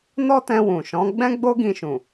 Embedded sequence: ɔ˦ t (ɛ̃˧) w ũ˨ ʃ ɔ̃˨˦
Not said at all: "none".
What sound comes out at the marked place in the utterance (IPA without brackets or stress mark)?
ɛ̃˧